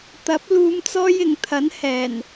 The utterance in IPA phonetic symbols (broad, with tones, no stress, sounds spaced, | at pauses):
t̪ ɐ˨˥ p̚ l uː˨˧ m t͡s ɔː˧ j ɪ˨˩ ŋ t̪ʰ ɐ˨˥ n h ɛː˨˩ n